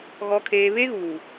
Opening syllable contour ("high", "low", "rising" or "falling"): low